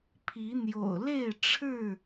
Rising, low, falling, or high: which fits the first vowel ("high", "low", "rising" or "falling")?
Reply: rising